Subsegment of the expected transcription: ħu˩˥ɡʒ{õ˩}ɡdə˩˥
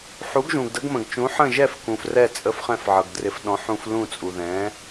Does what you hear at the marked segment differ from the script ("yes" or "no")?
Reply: yes